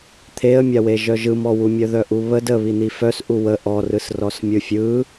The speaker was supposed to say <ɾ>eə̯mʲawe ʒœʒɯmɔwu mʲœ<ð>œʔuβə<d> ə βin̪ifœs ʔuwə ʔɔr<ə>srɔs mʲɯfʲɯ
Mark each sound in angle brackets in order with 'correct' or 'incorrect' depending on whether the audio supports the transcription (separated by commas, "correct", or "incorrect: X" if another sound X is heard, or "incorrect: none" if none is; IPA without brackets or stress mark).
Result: incorrect: t̪ʰ, correct, correct, incorrect: ɯ